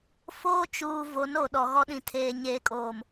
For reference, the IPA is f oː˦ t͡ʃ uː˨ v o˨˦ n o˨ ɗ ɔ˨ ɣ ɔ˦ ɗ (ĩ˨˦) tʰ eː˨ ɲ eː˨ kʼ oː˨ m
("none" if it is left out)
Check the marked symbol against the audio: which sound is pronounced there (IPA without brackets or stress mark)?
ĩ˨